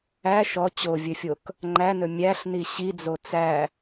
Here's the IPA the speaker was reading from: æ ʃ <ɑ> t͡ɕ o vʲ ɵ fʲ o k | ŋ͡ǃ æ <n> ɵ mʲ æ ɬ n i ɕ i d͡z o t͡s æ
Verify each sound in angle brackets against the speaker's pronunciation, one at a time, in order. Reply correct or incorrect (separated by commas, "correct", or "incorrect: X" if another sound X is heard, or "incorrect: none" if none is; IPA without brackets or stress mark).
incorrect: ɔ, correct